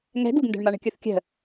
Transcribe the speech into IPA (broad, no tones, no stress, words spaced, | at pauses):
ŋɛ̤ ɡuɡndɛ̤ɳma ɳə̤kʲuθkʲə̤